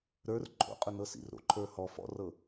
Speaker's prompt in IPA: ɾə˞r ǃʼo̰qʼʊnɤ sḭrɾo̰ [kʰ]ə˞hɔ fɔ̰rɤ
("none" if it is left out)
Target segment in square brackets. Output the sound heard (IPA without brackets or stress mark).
ǃʰ